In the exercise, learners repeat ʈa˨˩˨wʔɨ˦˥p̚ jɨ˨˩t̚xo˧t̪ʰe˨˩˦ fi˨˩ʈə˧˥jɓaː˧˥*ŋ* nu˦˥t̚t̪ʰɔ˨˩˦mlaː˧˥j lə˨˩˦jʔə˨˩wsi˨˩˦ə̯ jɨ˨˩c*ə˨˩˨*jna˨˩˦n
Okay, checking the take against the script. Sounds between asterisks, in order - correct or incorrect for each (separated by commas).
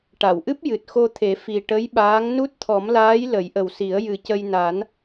correct, incorrect